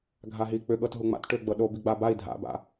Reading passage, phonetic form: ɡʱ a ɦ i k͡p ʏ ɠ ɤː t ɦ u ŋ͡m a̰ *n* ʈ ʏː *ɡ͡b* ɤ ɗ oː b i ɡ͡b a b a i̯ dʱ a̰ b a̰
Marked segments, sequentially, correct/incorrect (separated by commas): incorrect, correct